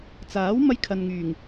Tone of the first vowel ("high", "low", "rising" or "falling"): rising